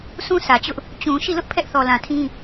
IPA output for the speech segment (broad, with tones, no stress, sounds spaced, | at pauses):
sʰ ũ˦ s ä˨ t͡ɕ ʊ˦ ʔ | t͡ɕ ũ˨ ʃ i˦˨ l ʊ˦ ʔ pʰ ɛ˦ ʔ θ ɔ˨ l ã˨ tʰ ĩ˦